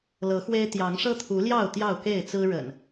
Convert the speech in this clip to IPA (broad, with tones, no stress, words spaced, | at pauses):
lɤ˨˦xwe˦ɪ̯ t̪jɑ˨˦ŋʂɤ˦t̪ʰu˨˦ljɑ˥˨ʊ̯ t̪jɑ˥˨ʊ̯ke˥˨ɪ̯t͡sɹ̩˦ ɻə̰˨˩n